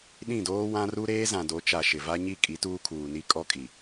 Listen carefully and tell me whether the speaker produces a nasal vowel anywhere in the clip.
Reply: yes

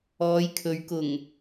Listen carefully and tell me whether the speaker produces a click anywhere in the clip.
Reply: no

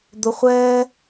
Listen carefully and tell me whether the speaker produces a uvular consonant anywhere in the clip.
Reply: yes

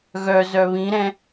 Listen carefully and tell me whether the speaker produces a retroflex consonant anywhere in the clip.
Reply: no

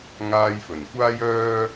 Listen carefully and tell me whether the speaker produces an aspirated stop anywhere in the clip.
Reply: no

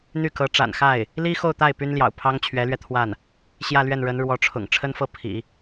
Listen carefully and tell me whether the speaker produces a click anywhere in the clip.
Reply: no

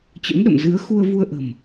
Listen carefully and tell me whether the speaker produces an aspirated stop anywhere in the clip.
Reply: no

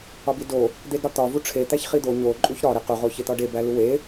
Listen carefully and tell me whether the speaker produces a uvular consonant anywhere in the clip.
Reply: yes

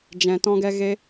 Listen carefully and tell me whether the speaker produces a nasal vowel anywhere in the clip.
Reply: yes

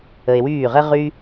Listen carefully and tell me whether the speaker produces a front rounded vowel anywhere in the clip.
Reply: yes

